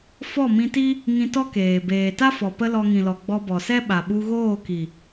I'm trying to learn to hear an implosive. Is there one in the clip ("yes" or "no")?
yes